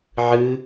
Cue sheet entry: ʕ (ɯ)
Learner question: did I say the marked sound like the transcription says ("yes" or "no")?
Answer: yes